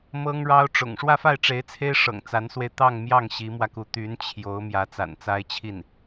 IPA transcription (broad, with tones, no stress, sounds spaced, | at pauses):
m ɤ˥ ŋ ɻ ɑ˥ ʊ̯ ʈ͡ʂ ʊ̰˨˩ ŋ ʂ w ä˥˧ f a˥˩ ɪ̯ ʈ͡ʂ e˧˥ ɪ̯ t͡sʰ e˥ ɪ̯ ʂ ɤ̰˨˩ ŋ t͡s a˧˥ n s w e˧ ɪ̯ t̪ ɑ˥˧ ŋ m j ɑ˥˩ ŋ ɕ i˧˥ m w ä˧ k u˧˥ t̪ y˧˥ n t͡ɕʰ j o˧˥ ʊ̯ m j ä˧˥ t͡s a̰˨˩ n t͡s a˥ ɪ̯ t͡ɕʰ i˥˩ n